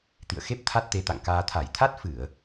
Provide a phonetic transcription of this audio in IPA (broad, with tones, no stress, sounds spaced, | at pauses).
t̪ ḭ˧˨ ə̯ x e˦˥ p̚ t̪ʰ a˦˥ t̚ t̪ e˨˦ t̪ a̰˧˨ ŋ k aː˧ t̪ʰ a˧˩ j t̪ʰ a˦˥ t̚ f ɨ˧˩˨ ə̯